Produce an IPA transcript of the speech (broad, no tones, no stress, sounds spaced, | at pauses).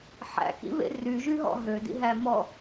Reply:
ħ æ̰ k ḭ β ḛ r y ʒ y ɦ ɔ̰ ɦ ø d ḭ ɦ æ m ɔ